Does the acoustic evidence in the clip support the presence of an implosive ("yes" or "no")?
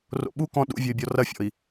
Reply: yes